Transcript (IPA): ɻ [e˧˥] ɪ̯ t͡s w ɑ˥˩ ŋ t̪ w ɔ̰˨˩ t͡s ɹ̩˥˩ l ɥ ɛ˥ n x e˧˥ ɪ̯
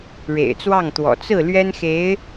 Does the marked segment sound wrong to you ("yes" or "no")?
yes